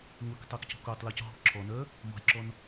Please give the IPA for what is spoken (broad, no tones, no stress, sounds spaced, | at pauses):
ŋʷ i k tˤ o k c ɔ̤ k o tˤ l ɔ c ɦ ɔ̤ ǁʰ ɔ n œ | m ɔ̤ j ǁ ɔ n